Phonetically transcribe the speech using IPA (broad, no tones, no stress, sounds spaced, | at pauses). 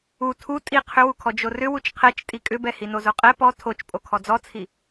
u tʰ u tʼ i qʰ ʏ w u kʰ ɔ d͡ʒ o r ʏ w u t͡ʃ qʰ ɛ t͡ʃ tʼ i kʼ ʏ b ɛ h i n o z o qʼ ɛ p ɔ tʰ o t͡ʃ pʼ o kʰ ɔ d͡z ɔ t͡sʰ i